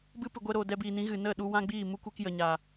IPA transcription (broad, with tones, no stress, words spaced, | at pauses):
bɨ˦pɨ˨ɡʷɛ˧ɾoː˨ dɛ˧biː˨nĩ˨˦ɣɨ˨ nə˦˨ ɗu˧wã˦ɡ͡biː˦˨ mu˦kʷe˦kjə˨ɲaː˨